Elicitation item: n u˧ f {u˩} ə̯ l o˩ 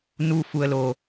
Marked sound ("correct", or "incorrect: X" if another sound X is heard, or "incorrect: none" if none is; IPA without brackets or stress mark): correct